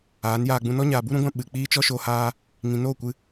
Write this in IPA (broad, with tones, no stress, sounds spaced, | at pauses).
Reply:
aː˨˦ n j aː˧ ɡ͡b ũ˧ n ɔ˦ ɲ aː˨ b u˦ ɾ ũ˨˦ ɡʷ ã˧ ɓ ɨ˨ k͡p iː˦ t͡ʃ ɔ˦ ʃ o˧ h aː˦ | ŋ ĩ˨ n oː˦˨ kʷ ɨ˧